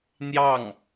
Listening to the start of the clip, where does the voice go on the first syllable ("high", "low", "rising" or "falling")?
falling